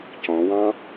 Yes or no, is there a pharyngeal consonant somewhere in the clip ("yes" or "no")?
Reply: no